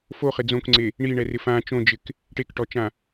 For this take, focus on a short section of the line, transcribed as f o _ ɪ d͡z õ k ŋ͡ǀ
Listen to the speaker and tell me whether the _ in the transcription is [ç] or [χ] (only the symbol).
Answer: χ